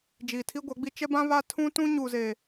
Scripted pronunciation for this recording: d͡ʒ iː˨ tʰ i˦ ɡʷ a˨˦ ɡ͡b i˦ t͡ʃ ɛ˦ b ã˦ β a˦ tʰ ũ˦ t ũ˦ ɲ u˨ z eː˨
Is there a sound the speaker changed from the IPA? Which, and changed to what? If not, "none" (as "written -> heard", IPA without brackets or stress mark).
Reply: none